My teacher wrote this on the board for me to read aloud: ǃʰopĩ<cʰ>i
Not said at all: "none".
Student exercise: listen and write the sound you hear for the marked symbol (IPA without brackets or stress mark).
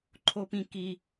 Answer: k